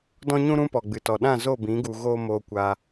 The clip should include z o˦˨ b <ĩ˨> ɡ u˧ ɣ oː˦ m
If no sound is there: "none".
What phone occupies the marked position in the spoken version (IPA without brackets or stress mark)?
ĩ˨˦